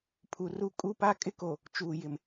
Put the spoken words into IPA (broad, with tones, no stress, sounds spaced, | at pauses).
pʰ u˨ r u˦ kʼ u˦˨ p a˦ kʼ ɪ˦ k o˨ | t͡ʃ uː˨ j ɪ˨ m